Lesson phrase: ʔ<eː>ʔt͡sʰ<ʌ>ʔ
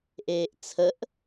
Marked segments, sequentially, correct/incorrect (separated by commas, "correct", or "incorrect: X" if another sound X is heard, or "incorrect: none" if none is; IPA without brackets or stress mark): correct, incorrect: ə